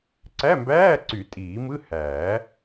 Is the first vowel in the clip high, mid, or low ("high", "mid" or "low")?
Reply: low